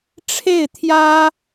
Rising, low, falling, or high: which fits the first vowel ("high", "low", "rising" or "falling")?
falling